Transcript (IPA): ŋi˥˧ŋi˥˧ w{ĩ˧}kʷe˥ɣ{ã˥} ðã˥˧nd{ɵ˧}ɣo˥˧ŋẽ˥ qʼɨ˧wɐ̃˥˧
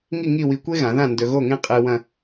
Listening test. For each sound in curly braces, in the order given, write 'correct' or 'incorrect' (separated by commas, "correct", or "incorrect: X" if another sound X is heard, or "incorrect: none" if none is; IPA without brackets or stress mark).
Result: incorrect: i˧, incorrect: ã˩˧, correct